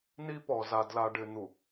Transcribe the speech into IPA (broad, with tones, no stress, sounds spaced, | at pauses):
n i˦ p ɔ˨ z a˨ d l a˨ ɖ ɪ˨ n̪ u˨